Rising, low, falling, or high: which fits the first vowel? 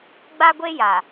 high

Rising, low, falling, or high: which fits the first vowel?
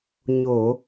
low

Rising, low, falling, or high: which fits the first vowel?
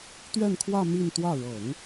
falling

